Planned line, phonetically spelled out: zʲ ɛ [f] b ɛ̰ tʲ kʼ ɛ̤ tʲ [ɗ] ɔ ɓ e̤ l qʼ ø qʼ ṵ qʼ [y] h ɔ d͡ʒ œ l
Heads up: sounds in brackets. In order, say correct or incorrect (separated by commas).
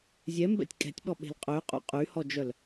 incorrect, incorrect, correct